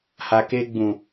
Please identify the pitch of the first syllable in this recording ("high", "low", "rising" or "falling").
low